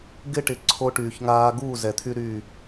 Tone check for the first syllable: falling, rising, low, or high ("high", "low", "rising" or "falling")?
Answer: high